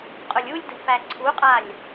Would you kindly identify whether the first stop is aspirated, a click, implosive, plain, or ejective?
ejective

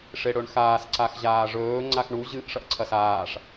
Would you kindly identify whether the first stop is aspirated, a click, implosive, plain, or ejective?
click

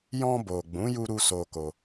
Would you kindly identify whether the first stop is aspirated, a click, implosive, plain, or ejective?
plain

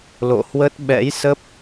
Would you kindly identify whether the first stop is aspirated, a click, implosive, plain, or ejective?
plain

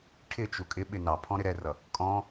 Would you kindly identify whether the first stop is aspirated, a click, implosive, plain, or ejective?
aspirated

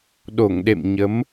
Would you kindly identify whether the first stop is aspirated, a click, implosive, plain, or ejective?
implosive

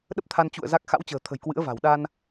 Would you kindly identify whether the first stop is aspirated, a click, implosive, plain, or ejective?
implosive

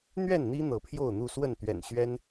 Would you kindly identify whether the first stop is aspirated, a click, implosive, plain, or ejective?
aspirated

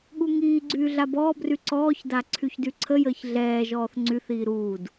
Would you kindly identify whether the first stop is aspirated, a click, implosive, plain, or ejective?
implosive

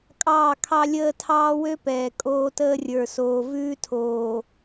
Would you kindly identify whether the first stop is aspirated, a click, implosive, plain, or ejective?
ejective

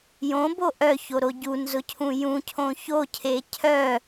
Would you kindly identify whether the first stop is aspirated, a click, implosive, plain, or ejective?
plain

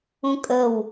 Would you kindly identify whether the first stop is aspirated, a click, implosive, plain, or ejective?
ejective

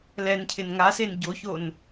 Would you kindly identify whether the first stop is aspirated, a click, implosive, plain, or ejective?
aspirated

